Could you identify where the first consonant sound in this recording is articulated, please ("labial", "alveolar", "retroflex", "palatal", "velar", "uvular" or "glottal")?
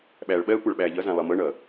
labial